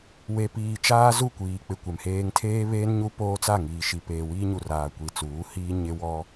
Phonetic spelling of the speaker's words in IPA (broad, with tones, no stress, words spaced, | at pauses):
we˨piː˨ t͡ʃaː˦zu˦˨kʷiː˨k͡pɪ˨ kʷɛ˨mheː˦ŋ tʰeː˦βeː˦n ɲu˦poː˦t͡sa˦˨ŋiː˨ ʃi˨peː˨ wiː˦ɲu˨ raː˨ kʷi˨t͡suː˨˦ hiː˦ ɲɪ˦wɔ˦